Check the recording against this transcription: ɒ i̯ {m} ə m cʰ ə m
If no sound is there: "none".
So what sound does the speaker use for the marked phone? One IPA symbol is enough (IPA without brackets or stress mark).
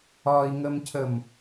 ŋ